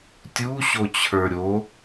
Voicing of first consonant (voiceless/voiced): voiceless